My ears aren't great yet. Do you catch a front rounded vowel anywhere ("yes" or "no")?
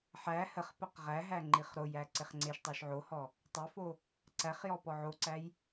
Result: no